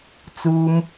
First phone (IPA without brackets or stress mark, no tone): t͡s